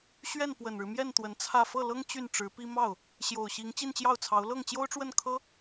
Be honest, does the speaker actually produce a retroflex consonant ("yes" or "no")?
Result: yes